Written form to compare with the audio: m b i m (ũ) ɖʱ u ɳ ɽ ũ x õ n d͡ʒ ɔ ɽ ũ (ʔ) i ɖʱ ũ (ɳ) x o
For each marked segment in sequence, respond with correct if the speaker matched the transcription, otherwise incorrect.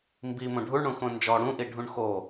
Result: incorrect, correct, correct

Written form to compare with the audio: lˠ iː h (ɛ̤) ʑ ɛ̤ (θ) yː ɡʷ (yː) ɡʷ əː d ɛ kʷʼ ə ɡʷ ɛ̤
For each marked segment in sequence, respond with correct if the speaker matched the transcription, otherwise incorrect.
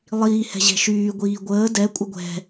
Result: correct, incorrect, incorrect

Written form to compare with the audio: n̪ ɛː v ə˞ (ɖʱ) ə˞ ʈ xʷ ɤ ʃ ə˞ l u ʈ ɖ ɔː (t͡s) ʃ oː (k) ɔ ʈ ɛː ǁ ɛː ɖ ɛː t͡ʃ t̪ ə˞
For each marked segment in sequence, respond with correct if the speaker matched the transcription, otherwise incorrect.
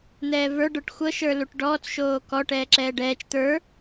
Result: incorrect, correct, correct

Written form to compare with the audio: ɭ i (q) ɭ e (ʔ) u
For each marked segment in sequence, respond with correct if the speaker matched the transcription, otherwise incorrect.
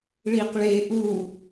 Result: correct, correct

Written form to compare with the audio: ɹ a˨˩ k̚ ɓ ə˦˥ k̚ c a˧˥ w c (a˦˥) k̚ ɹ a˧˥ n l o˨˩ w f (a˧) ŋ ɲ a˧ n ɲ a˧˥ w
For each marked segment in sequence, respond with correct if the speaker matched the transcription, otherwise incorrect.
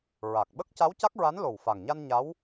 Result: correct, incorrect

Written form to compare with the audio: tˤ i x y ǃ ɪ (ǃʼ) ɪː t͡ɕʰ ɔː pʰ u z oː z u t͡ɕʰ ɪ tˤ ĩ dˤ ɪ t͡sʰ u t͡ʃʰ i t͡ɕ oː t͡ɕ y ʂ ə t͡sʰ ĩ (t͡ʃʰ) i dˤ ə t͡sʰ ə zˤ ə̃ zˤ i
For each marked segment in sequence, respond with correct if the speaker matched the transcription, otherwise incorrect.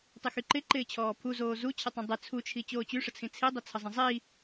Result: incorrect, incorrect

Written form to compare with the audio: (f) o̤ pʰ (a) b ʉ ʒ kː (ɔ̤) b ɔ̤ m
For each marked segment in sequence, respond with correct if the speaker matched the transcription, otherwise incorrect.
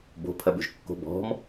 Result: incorrect, incorrect, incorrect

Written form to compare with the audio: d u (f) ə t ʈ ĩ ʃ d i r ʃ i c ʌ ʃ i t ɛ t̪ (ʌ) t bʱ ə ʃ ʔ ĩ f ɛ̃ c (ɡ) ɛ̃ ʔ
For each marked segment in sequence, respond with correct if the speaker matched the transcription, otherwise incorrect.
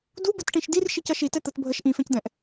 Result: incorrect, incorrect, incorrect

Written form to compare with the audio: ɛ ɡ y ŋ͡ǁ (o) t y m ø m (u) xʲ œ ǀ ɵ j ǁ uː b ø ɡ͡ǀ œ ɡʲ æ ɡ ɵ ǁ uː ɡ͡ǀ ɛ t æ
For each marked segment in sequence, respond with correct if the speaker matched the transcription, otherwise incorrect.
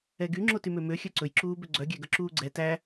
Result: correct, incorrect

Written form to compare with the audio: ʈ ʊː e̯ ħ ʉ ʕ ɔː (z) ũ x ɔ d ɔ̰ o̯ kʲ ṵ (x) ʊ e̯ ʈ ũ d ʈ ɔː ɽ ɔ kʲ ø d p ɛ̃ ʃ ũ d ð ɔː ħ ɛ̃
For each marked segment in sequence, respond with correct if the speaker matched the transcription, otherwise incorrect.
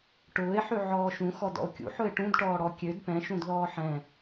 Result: incorrect, incorrect

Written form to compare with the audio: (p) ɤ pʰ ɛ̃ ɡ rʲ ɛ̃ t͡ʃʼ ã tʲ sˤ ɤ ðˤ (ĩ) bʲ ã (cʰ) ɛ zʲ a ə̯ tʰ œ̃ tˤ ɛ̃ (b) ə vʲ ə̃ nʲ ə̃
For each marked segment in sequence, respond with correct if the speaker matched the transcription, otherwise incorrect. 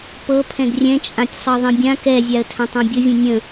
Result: correct, correct, incorrect, incorrect

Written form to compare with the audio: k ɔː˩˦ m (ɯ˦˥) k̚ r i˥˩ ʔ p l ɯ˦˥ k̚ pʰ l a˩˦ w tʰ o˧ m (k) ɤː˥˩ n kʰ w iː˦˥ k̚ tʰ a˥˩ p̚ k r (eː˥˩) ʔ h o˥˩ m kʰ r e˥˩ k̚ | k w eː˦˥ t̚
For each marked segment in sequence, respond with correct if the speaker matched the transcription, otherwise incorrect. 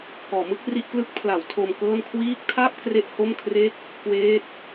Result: correct, correct, incorrect

